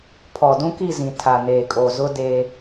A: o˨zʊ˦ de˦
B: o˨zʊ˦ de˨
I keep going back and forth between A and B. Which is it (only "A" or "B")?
A